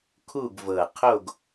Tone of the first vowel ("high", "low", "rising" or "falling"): falling